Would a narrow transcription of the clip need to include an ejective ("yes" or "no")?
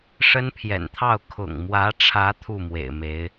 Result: no